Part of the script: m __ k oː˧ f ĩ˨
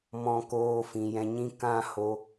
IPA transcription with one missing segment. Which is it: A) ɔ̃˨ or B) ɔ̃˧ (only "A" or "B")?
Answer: B